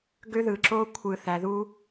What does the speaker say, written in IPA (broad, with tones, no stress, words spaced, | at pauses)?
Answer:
ɡø˦ðɯ˨ǁo˦ kʷʰɯ˨ θæ˨ðu˦